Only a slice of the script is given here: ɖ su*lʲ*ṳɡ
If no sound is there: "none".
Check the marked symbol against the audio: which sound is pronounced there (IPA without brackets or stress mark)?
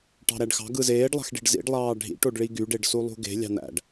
lˠ